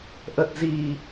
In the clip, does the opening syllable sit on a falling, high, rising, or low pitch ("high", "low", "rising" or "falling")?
low